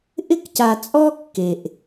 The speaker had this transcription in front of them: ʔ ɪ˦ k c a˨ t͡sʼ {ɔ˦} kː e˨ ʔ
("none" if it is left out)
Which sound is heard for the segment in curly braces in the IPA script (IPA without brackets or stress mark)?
ɔ˦